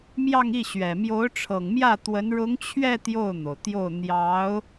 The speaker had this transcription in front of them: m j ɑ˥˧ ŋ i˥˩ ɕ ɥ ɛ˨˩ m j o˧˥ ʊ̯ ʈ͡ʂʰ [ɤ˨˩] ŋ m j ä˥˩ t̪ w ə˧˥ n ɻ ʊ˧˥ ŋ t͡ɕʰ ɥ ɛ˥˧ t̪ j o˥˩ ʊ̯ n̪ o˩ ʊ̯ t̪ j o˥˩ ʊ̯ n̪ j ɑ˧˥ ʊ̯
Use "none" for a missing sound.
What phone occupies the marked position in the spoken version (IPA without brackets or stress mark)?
ɤ˨˩